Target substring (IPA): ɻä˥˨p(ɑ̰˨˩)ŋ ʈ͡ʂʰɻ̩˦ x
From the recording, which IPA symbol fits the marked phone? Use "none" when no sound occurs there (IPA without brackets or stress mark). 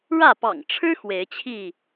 ɑ̰˨˩